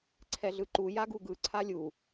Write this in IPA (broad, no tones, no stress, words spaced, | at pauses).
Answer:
ǀʰɛɮɯǃu jaɡuɡɯ ǀʰalʲu